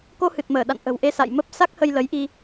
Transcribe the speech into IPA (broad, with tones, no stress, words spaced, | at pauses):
ko˧hɨ˨˩t̚məː˧˩ ɗa̰˧˨nʔə̤˨˩wʔe˧ sa̰˧˨jmə˦˥p̚ sa˦˥k̚hə˧j lə˨˦jʔi˧